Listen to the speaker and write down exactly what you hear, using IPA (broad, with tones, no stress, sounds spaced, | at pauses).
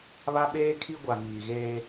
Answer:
β a˦ ɓ eː˦ kʰ i˦ ɡʷ a˨ ŋ iː˨ ɣ eː˦